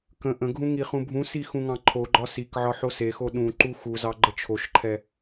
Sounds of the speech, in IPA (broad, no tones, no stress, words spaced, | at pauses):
kə̃ ʔə̃ɡʱũ ŋiχũbʱũsi xũŋɑ̃ǃʰoɡ͡ǃɒ sikʕɒ ħosexo ɗũ ǃuxuzɑ ɡ͡ǃət͡ʃʰoʃǃʰɛ